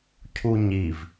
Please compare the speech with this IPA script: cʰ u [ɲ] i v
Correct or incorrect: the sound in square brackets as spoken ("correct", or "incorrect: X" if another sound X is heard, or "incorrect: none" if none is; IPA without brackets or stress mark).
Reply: correct